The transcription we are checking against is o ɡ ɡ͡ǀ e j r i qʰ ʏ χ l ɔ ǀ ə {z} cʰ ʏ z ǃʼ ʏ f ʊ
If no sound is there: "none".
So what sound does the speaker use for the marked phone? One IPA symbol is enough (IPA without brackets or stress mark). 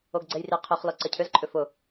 none